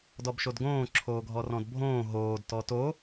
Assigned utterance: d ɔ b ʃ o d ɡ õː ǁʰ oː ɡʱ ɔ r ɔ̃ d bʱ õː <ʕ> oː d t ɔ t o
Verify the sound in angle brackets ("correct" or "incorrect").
incorrect